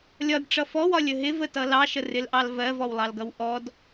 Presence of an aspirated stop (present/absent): absent